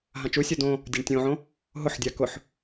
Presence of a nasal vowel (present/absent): present